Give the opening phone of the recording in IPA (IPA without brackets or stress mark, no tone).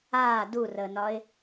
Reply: aː